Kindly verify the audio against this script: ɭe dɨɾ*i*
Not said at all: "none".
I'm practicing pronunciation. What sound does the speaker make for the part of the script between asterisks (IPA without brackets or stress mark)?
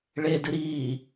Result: iː